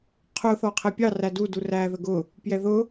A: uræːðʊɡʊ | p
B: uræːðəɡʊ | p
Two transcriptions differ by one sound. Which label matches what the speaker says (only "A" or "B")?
B